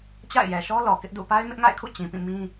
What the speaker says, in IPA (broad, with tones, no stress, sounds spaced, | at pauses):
t͡ɕ a̰˦˨ ɪ̯ j ɛ˨ ʃ ɔ˦ l ɔ˨ k ɪ˦ ʔ d ṵ˦˨ p a˦ ɪ̯ m ɪ˦ ʔ ŋ a̰˦˨ ɪ̯ kʰ ṵ˦˨ t͡ɕ ĩ˨ p ĩ˦˨ m ĩ˦